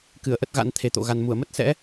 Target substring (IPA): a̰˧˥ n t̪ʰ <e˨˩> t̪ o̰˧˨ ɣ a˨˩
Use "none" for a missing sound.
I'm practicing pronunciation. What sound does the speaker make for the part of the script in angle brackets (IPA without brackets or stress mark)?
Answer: e˨˩